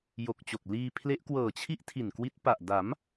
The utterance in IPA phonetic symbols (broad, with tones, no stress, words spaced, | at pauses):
jo˨˩k̚t͡ɕo˨˩k̚ liː˧ pʰle˦˥ʔkwɤː˨˩t͡ɕʰi˥˩ʔ tʰi˨˩nkwi˦˥t̚pa˨˩ʔ da˩˦m